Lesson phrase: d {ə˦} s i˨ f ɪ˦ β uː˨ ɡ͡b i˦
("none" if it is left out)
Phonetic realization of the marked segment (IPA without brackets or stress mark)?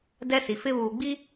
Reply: ɛ˦